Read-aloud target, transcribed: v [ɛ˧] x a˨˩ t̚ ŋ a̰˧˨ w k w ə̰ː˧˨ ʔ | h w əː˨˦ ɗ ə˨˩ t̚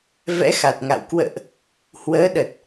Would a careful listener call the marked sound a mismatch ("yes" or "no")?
yes